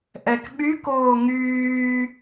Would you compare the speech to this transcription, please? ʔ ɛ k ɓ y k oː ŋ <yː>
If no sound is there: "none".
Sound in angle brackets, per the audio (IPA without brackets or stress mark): yː